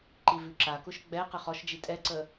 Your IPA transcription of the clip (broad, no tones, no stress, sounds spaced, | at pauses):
ǃ i v ʉ ǁ a k ʊ ʃ ɡ͡b ɛ q ɛ χ ɔ ʃ d͡ʒ i tʼ ɛ ǀ ə